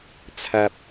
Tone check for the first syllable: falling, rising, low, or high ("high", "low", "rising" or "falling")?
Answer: low